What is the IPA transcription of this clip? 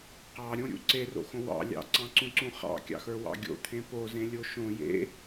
q ɑ ɾʲ õ ɾʲ ṵ ǀ e r o̰ x õ w ɑ̰ lʲ ɑ̰ ǀ ɑ̃ ǀ ũ ǀ ũ χ ɑ̰ kʲ ɑ̰ x ə˞ w ɑ̰ ɡʲ o̰ t̪ʰ ẽ p o z ẽ lʲ o ʃ õ j ḛ

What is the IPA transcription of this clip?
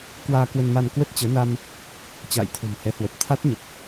k w aː˧ k w ə˧ n m a˧ n k w ə˦˥ t̚ t͡ɕ əː˨˦ n a˧ m | t͡ɕ a̰ː˧˨ j t̪ʰ o̤˨˩ m h ɛ˨˦ h w ə˨˩ p̚ t̪ʰ a˦˥ t̚ ɲ ə˨˩ p̚

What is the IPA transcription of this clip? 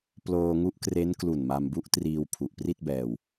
p l oː˧ ŋ u˦˥ ʔ k r e˦˥ n k l u˨˩ n m a˧ m b u˦˥ ʔ t r iː˧ w pʰ u˨˩ ʔ p r i˥˩ t̚ b ɛː˧ w

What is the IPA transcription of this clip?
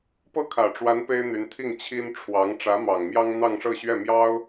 p ɤ˥˩ kʰ ä˨˩ ʈ͡ʂ w a˧˥ n p e˥ ɪ̯ n̪ y˧˥ n t̪ʰ i˥˩ ŋ t͡ɕʰ i˥ n ʈ͡ʂʰ w ɑ˧˥ ŋ ʈ͡ʂ ä˧˥ m ɑ˨˩ ŋ m j ɑ˥ ŋ n̪ ɑ˥˧ ŋ ʂ ɤ˥˧ ɕ ɥ ɛ˥˩ m j ɑ˥ ʊ̯

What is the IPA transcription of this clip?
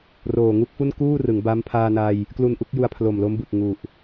r oː˨˩ ŋ u˦˥ k̚ f u˥˩ n k uː˥˩ r ɯ˩˦ ŋ b a˦˥ m pʰ aː˧ n a˧ j | k l u˧ n ʔ u˦˥ k̚ j u˧ a̯ pʰ l o˨˩ m l o˦˥ m b ɯ˨˩ k̚ ŋ u˨˩ ʔ

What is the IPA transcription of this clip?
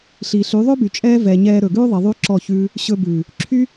ɬ i˨ ɬ y˨˦ ðˤ ø˦ b y˨ t͡ʃʼ ɛː˦ v ɛː˨ ɲ ɛː˧ ɾ ɵ˨ ɡ ʉː˦ ðˤ i˨ ðˤ y˦ ǁ ɔ˦˨ ç ʉː˦ | ɕ ɵ˧ b ʉː˨ | ǁʰ y˦

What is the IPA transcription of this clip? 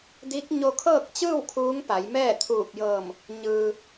d i˧˥ k̚ ɲ o˧ kʰ ɤː˥˨ k̚ t͡ɕ ɯː˥˨ w kʰ uː˧˥ ŋ p a˩˧ j m ɛː˥˨ t̪ʰ uː˧˩ p̚ j ɤː˧˩ m | ɲ ɯː˩

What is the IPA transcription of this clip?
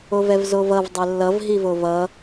o v ɛ v z o v ʌ v dˤ ɛ lː ʌ v ɦ i v o v ʌ

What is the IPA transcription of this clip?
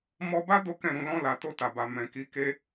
m ɔ˧ b a˦ d o˦ k ɛ̃˦˨ ɾ ũ˧ l ɔ̃˧ l a˨ t o˧ t a˨ b a˨ m ɛ̃˨ k i˨˦ k e˦

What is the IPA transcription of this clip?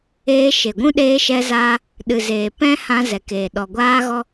eː˧ ʃ e˨ ɡʷ ũ˦ ɗ eː˧ ʃ ɛ˧ z aː˧ | ɗ ɨ˨ z eː˨ p ɛ̃˦ h ã˧ z ɛ˨ k eː˨ ɗ ɔ˨ ɡʷ aː˦ ɣ ɔ˦

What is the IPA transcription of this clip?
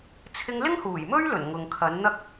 t͡sʰ ɪ˧ ŋ l ɪ˥ ŋ h uː˨˩ j m ɵ˥ ɥ l ɵ˨˩ n ŋ ʊ˨ ŋ kʰ ɐ˨˥ n n̪ ɐ˥ k̚

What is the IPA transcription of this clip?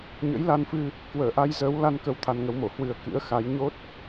ɲ ə̰˧˥ j l a˧ n f ɨ˧ | k w əː˧˩ ʔ a˧ j z əː˨˦ w l a˧ n k ə˨˦ w t̪ʰ a˧ n ŋ ə˨˦ w m o˧˩ h w ɨ˨˩ ə̯ k ɨ̰˧˥ ə̯ x a˨˦ j ɲ o˦˥ t̚

